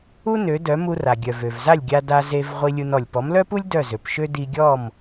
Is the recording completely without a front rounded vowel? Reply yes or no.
no